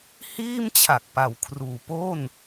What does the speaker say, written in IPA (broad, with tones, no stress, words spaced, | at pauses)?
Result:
hiː˥˩mt͡ɕʰa˨˩k̚ pa˩˦wkʰruː˩˦ po˥˩n